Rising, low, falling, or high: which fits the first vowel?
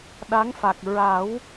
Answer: rising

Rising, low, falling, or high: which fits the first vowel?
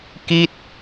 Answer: falling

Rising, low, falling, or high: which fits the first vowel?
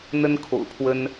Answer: high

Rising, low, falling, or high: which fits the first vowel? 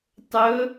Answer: rising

